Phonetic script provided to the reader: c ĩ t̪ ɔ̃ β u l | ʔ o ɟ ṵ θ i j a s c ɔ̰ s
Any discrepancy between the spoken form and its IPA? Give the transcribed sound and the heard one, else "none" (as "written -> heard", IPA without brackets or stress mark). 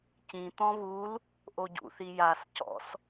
none